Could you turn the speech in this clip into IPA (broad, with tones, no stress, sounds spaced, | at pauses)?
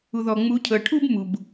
u˨ ð ɔ˨ ŋ͡m u˨˦ cʰ ɤ˨ ʈʰ u˦ b m u˨ b